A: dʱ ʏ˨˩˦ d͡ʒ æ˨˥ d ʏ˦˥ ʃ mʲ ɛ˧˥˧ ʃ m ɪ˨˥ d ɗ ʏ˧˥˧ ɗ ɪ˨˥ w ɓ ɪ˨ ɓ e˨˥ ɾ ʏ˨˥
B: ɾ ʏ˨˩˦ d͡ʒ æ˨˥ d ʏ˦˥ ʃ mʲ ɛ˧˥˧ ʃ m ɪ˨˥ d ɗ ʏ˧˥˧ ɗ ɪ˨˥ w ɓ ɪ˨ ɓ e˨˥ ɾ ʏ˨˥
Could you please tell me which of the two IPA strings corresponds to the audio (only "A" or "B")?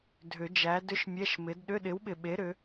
A